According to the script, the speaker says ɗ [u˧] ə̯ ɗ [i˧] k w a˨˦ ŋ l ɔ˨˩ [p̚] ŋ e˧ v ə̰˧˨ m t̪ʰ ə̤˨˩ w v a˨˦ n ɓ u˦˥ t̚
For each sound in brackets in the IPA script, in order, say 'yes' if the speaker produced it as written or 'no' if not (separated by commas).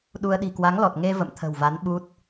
yes, no, no